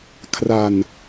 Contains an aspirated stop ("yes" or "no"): yes